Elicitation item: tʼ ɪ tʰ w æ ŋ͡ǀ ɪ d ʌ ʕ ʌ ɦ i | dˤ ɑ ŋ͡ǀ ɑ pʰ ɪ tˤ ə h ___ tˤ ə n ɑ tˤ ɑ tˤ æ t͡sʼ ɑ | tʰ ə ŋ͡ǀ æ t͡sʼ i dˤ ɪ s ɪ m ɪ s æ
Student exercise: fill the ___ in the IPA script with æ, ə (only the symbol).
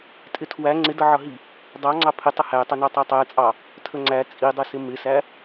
æ